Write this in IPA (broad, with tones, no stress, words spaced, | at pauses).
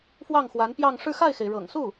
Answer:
fwɑ˥˩ŋxwa˧˥npjɑ˥˧ŋ ʂɻ̩˥˧xa˥˩ɪ̯xe˩ɪ̯ ɻɤ̰˨˩ŋ su˥˩